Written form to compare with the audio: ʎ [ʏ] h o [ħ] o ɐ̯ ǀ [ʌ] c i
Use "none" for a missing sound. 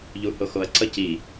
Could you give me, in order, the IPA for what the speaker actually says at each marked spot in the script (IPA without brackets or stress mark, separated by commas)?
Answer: u, x, ʌ